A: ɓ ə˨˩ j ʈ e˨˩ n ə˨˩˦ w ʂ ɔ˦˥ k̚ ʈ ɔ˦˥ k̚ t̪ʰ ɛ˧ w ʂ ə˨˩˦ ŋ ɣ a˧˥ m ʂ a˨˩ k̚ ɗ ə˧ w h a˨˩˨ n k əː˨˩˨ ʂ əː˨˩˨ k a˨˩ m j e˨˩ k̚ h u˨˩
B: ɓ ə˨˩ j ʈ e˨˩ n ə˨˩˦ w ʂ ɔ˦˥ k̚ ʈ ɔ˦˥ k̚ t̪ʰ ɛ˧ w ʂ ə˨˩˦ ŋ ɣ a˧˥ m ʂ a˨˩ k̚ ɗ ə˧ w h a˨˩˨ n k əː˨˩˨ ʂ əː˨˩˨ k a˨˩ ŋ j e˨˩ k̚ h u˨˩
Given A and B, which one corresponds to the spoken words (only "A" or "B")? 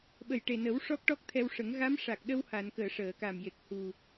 A